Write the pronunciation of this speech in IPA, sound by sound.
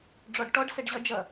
ɖ͡ʐ ɔ ɖ ʈ ɔ ɖ s ɛ ɖ ʑ ʌ d͡ʒ ʌ

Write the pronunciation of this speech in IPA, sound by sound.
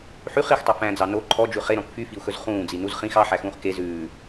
ħ y χ i x tˤ u f æ̃ d͡z ɑ n o ǃʰ ɔ d͡ʒ ʉ χ e ɾ ɔ̃ k f y f i u̯ x ɵ z χ ũː d͡z i n u z χ ĩ x ɑ ħ æ x ũː χ k e z ʉː

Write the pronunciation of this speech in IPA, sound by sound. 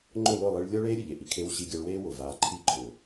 ŋ͡ǃ ʊ˦˨ l ʊ˦˨ lˠ i˧ ɭ lʲ ɔ˦ ɭ eː˦ ɾʲ ʊ˨ ʎ e˨ ʔ i˨ kʰ e˧ w ɕ i˧ ɡʲ a˧ ɭ w eː˦ w ʊ˨ v aː˧ ǃʰ i˦ ǃʰ ʊː˨

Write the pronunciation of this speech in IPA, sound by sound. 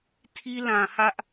tʰ i˦ l ã˨ h ä˦ ʔ

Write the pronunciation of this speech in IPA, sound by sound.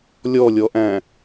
lʲ ɔ lʲ ɔ ʔ æ̃

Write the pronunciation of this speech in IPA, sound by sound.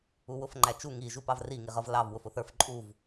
u w ʊ f ŋ͡ǃ æ t͡ʃ u ŋ i ʒ u p ɑ v r i ŋ i ʁ ʌ v l ɑ v w ʊ f ʊ θ ə˞ f ǃʼ u v

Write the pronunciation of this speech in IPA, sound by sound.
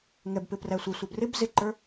ŋ ɛ b p ɪ p r æ sʷ ɪ sʷ ɛ b r ɪ b z ɪ ǃ ə˞

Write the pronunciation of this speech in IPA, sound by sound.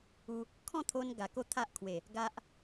u˧ | kʰ ɔ̃˥˧ t̪ʰ o˧ n ɡ a˨˩ k o˥˧ t̪ʰ a˦ ʔ kʰ w e˨˩ | ɡ a˦ ʔ

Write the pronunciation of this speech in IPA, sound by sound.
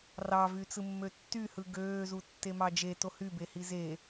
r ɑ v y t͡s ɯ mː ø tː y h ɯ ɡ øː z u tː e m ɑ d͡ʒ e t o h y b e h i z e

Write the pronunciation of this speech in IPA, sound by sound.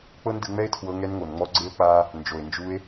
k͡p ɤ˦ n d ɯ˧ ŋ͡m ɛ˦ e̯ tʰ w ɤ˧ ŋ ɛ˧ n ŋ o˨ n ŋ͡m ɔ˧ ɡ͡ǀ e˦ o̯ k͡p a˦ | n d͡ʒ o˨ e̯ n d͡ʒ u˧ e̯

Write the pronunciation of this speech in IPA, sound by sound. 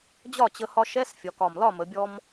d͡ʑ ɒ˥˩ t͡ɕ ə˧ h ɒ˧ ʃ ɛ˧˥˧ s fʲ ɒ˩˧ k ɒ˨˩ m l ɒ˥˩ m ə˩˧ bʲ ɔ˧ m

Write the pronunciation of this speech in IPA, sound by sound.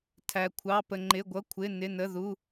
tʰ æ˧ kʷʰ ɑ˧˥˧ p ə˧ ŋ͡ǃ ɪ˧˥˧ ɡʷ ʌ˧˥˧ kʷʰ ɪ˧˥˧ n ɪ˧˥˧ n ə˧˥˧ ð u˧˥˧

